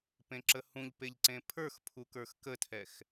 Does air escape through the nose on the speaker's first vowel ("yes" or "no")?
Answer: yes